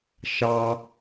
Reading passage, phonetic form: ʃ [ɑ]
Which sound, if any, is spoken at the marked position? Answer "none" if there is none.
ɑ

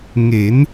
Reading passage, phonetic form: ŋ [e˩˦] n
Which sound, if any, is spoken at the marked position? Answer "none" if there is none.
e˩˦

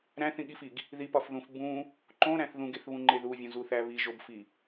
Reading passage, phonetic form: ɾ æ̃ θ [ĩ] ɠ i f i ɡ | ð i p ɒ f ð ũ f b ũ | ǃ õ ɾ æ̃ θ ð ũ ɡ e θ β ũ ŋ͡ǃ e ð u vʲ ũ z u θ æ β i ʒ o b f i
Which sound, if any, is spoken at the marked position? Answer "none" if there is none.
ĩ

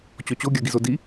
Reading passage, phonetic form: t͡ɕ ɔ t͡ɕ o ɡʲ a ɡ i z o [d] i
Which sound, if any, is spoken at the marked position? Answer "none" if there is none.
d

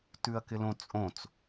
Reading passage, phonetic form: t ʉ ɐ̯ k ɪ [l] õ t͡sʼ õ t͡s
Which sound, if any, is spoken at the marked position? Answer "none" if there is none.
l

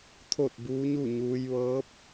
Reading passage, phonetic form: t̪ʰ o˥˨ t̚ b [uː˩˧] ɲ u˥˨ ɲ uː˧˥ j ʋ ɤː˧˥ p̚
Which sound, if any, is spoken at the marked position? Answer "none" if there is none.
uː˧˥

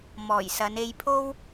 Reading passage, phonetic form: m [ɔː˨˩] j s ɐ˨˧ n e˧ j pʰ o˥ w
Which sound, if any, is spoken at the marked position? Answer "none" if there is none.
ɔː˨˩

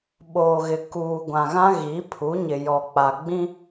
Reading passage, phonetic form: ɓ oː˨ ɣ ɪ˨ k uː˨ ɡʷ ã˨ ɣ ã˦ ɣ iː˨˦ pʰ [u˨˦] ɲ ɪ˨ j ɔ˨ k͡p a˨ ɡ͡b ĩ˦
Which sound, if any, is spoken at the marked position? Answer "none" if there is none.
u˨˦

